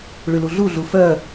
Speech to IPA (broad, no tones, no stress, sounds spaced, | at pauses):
ɭ y l u ɮ u ɮ u f œ